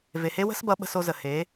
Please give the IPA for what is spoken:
v e˨ h e˦ w ə̤˦ s b ʌ˨˦ ɓ ə̤˧ s o˧ z ə˨ h e˨˦

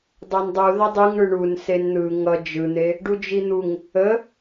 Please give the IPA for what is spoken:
dˤ a n dˤ u ð ʌ dˤ y ŋ ɳ ɯ ɳ u n s e n n̪ ɯ ŋ ʌ d͡ʒ ɯ n̪ e | ɖ u d͡ʒ i n̪ u ŋ | ə

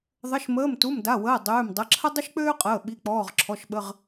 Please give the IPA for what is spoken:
ðˤ ə˩˧˩ ʃ m əː˩˧˩ m t u˩˧˩ m d a˩˧˩ w əː˩˧˩ dˤ øː˩˧˩ m dˤ ə˩˧˩ ǁʰ ə˥ dˤ ə˥ ʃ k͡p øː˥ qʼ əː˩˧˩ ɓ i˩˧˩ k͡p ɔː˩˧˩ ʁ ǁʰ ɔ˩˧˩ ʃ ɓ ə˩˧˩ ʁ

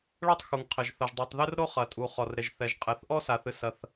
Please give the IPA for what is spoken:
ɭ ɐ˥ tˤ x u˩ ŋ qʰ ɘ˩ ʒ θ ɐ˩ ʒ dˤ i˩ tˤ ð ɘ˥ r ɾ o˥ χ ɐ˩ tʼ u˩ χ ɔ˩ r ɾ e˩ ʒ θ ɛ˩ ʒ qʼ ɛ˩ θ ʔ ɔ˥ s a˩ θ ɨ˩ s ɐ˩ θ

